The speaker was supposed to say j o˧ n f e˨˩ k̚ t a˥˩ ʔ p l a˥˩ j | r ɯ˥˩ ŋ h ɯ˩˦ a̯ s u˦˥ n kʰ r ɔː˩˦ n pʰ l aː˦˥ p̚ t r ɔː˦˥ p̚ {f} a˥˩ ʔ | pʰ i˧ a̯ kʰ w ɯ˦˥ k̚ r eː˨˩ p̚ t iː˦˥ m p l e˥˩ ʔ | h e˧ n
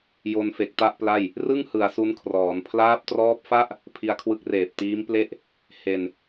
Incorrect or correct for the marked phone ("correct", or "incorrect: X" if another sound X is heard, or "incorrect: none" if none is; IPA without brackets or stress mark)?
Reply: correct